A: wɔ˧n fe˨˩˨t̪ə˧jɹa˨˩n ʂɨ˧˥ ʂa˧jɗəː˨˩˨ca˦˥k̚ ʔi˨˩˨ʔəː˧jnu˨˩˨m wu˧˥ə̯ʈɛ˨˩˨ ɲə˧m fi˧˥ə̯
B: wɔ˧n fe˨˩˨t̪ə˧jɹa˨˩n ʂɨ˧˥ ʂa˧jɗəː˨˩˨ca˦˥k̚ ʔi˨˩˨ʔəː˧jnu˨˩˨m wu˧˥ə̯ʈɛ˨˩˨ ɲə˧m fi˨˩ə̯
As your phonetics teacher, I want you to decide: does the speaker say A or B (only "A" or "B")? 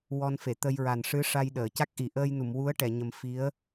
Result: A